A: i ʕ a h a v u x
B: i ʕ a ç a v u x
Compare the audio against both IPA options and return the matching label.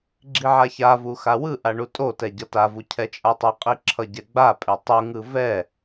B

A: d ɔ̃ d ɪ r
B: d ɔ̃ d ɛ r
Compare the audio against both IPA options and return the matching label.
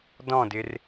A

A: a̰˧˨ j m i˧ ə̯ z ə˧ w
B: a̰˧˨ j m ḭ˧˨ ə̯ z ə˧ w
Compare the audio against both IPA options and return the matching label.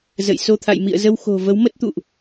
B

